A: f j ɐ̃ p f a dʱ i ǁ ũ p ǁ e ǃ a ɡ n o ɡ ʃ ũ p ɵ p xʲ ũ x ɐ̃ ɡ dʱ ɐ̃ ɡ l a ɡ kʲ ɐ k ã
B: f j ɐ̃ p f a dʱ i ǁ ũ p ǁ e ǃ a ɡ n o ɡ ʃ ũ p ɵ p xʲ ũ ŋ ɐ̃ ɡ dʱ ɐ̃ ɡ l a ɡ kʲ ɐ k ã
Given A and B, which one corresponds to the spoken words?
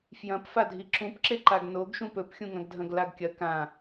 B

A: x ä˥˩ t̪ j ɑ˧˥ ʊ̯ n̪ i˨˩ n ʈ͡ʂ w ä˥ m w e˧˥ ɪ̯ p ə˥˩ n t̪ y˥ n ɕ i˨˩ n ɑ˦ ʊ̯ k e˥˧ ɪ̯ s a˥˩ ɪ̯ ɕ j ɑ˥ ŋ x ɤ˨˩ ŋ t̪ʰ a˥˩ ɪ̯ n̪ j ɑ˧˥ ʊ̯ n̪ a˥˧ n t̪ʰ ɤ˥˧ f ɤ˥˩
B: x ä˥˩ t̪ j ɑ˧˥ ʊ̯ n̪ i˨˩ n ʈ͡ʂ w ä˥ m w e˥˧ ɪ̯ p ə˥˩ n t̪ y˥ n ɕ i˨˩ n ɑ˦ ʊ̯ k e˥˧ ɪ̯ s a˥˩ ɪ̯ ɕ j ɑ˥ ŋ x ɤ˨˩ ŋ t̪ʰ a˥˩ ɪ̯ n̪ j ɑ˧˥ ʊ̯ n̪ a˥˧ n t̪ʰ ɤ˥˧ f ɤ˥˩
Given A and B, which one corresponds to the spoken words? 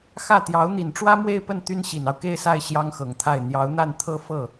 B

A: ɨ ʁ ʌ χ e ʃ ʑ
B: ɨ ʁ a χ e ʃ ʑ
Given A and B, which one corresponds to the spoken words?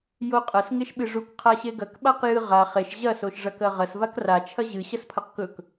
B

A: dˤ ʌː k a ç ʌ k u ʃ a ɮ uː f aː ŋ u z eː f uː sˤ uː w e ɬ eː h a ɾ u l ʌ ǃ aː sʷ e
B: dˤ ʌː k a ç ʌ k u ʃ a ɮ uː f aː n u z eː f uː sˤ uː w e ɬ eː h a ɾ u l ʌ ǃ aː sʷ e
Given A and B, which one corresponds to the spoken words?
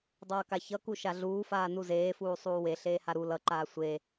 B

